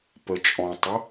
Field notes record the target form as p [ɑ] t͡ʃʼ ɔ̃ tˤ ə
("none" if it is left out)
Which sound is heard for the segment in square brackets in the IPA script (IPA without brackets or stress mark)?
ə